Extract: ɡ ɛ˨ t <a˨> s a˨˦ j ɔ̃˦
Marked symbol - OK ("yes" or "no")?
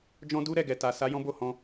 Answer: yes